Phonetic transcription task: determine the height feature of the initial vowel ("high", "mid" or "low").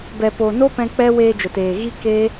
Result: mid